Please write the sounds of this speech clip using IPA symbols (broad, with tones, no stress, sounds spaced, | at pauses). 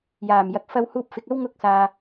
j aː˨˩ m j ɐ˨ k̚ f ɐ˧ w h uː˧ p̚ f ɪ˨ k̚ ɐ˥ w ŋ ʊ˥ k̚ s aː˧